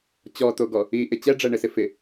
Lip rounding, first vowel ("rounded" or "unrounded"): rounded